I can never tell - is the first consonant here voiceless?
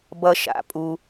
no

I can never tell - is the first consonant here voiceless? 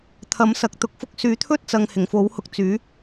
yes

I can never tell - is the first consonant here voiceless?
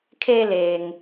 yes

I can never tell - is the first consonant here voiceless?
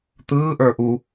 yes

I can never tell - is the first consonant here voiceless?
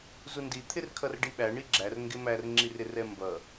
no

